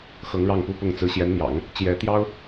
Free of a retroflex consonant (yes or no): no